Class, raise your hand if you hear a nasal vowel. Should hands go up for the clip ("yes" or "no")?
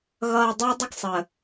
no